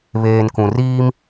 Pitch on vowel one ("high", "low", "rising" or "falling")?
low